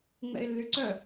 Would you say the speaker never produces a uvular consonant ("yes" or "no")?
yes